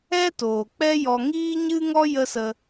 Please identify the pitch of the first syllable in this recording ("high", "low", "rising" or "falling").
high